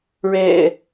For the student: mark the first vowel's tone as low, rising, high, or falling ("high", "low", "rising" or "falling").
low